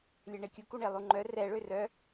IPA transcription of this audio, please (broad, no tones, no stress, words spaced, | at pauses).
lʲɛɳekʲu kuɳelˠuŋ͡ǃœ rɛ ɭørœ